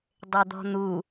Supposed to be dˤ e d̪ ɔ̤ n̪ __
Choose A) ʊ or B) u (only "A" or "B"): B